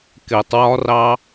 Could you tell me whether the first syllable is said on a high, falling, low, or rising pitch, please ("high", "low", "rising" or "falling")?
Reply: low